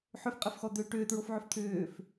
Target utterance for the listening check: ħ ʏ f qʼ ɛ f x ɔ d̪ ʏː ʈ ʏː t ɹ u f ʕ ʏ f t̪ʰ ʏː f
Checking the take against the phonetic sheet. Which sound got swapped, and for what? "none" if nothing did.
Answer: u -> o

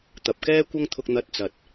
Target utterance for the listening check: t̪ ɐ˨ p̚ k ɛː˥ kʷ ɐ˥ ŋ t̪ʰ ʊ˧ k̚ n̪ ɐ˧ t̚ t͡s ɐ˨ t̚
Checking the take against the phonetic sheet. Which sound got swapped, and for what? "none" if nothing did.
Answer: none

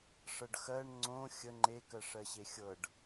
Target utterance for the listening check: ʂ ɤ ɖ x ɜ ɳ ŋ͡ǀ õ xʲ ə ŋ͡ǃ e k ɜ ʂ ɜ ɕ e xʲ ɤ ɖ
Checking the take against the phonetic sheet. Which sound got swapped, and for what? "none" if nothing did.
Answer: none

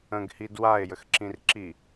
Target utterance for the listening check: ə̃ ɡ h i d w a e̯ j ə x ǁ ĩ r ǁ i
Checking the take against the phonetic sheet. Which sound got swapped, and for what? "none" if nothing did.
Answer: none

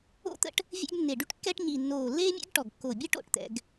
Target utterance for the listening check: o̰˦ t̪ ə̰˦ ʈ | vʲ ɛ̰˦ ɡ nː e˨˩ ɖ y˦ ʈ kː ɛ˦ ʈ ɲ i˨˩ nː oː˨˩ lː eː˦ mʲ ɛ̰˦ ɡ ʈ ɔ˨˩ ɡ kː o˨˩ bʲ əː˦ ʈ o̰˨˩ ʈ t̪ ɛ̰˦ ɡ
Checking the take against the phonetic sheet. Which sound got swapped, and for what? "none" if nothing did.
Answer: none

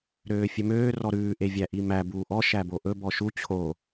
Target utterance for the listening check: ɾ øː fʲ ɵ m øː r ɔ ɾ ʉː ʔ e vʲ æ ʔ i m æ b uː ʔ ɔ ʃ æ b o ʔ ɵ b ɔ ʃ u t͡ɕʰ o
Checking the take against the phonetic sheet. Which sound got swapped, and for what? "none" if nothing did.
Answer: none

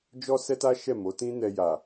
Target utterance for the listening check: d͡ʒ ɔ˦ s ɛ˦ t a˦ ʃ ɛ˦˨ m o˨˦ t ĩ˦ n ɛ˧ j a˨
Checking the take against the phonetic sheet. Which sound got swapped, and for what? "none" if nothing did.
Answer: none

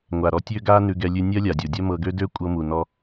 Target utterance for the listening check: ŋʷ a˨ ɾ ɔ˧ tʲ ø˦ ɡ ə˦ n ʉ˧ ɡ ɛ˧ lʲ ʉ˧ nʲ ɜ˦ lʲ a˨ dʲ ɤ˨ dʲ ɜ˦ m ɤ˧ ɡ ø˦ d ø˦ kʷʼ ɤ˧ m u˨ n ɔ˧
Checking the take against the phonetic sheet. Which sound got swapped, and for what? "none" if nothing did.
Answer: ə˦ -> a˦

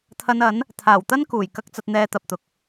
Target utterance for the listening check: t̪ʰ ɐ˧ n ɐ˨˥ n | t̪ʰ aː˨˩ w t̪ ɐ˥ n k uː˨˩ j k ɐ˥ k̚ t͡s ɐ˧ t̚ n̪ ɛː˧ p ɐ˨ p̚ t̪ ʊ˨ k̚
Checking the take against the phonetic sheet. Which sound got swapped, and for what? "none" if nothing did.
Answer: p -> t̪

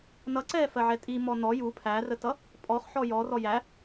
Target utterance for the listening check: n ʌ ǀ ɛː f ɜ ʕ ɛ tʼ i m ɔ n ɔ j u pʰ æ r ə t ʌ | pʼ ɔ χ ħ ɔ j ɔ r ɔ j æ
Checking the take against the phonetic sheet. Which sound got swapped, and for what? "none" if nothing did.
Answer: none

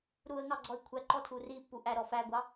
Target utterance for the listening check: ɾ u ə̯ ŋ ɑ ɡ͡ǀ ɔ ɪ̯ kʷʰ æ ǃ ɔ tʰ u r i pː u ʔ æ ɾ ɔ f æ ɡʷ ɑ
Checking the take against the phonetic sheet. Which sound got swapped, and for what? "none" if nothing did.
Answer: none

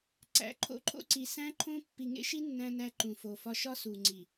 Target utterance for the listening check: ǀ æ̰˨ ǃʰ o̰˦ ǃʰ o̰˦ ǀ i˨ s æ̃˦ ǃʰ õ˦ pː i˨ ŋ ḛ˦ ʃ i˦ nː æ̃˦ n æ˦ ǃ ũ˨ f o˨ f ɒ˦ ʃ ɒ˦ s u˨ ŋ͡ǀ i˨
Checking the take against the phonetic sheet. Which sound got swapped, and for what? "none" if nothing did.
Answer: none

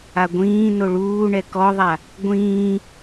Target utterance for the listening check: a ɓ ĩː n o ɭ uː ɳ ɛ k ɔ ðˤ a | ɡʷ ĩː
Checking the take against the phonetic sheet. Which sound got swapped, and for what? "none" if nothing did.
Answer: ɓ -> ɡʷ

